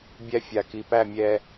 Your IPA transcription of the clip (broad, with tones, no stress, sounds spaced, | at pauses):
bʲ æ˦ fʲ a˨ k i˨ p æ˦˨ mʲ ɛ˧